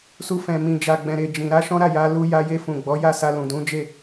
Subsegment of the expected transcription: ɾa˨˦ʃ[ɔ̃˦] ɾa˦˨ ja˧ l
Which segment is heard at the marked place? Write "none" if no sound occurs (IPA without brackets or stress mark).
ɔ̃˦